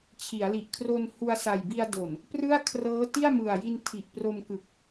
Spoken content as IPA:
t͡ɕʰ i˩˦ a̯ l i˨˩ ʔ kʰ r o˧ n h u˧ a̯ s a˨˩ j b i˧ a̯ d o˨˩ n | p r ɯ˥˩ a̯ kʰ r ɤː˦˥ t i˥˩ a̯ m ɯ˨˩ a̯ j i˧ n tʰ i˨˩ ʔ p r o˧ m k ɯ˨˩ k̚

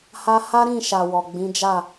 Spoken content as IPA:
h a˧ h a˦ ɾ ĩ˦˨ ʃ a˨ w ɔ˨ ɡ͡b ĩ˨˦ d͡ʒ a˦˨

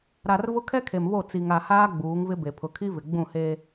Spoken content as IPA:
ɾ a˨ r v ʊ˦ kʰ ɛ˦ kʰ e˨ m β o˦˨ t͡s i˨ ŋ a˨ h aː˦ ɡ͡b uː˨˦ ŋ v ɪ˦ b e˨ pʰ ʊ˨ kʰ i˦ v ɪ˨ ɡ͡b ũ˦˨ h eː˦

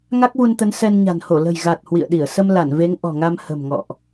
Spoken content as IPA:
ŋ a˦˥ k̚ v u˧ n t̪ ə˨˦ n s ɛ˧ n ɲ a̤˨˩ n h o˧˩ l ə̤˨˩ j ɣ a˨˩ t̚ h w ḭ˧˨ ə̯ ɗ i˧˩ ə̯ s ə˧ m l a˧˩ n v e˨˦ ŋ ʔ ɔ̤˨˩ ŋ a˧ m h ə̤˨˩ m ŋ ɔ̰˧˨ ʔ

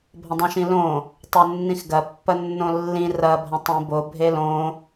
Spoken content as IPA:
bʱ ɐ̃ dˤ ĩ ʃ ĩ l õ | tˤ o nː ĩ x ɡ ɐ pː ɐ nː õ lː ĩ r ɐ bʱ ɐ̃ tˤ ĩ b o bʱ e l õ

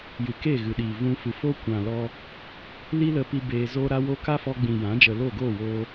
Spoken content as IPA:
j ɨ˨ k eː˦˨ ɣ ɨ˨ ɗ iː˨ v ũ˧ f ɨ˨ f o˦ kʷ ã˨ l ɔ˧ | l i˦ l ə˧ p i˧ b eː˧ z oː˦ ɾ a˦ w o˦ k a˦ f ɔ˧ ɡ͡b ĩ˨ j ã˨˦ d͡ʒ ə˨ l o˦˨ ɡ oː˦˨ w oː˧

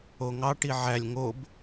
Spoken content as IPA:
o ŋ ɑ ʈ i ʕ æ lʲ ŋ o b

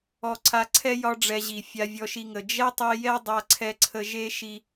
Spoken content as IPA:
ɔ˧ ǀʰ a˧ ǀʰ ɛ˦ j ɒ˦ ɖ͡ʐ ɛ˧ ʑ i˨ fʲ a˧ vʲ ɔ˧ ʃ i˧ ŋ ə˨ d͡ʒ ɛ˦ tˤ i˧ j ɛ˦ dˤ a˧ ǀʰ ɛ˧ ǀʰ ə˧ ʒ e˦ ʃ i˧

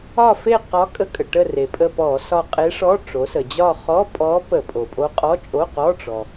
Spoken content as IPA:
ɒ˦˨ f e˦˨ q ɒ˧˥ kʼ ə˧˥ kʼ ə˩ ʈ ə˦˨ r e˩ pʼ ə˦˨ p ɔ˧˩˧ s ɒ˦˨ qʼ e˧˥ ʂ ɔ˧˥˧ ʈ͡ʂ o˩˧ s ə˩ d͡ʑ ɒ˦˨ χ ɔ˧˥˧ pʼ ɔ˧˥ p ə˧˩˧ pʼ o˩ pʼ o˧˥ qʼ ɔ˧˥˧ t͡ʃʼ o˧˥˧ q ɔ˧˥˧ ʈ͡ʂ ɔ˩

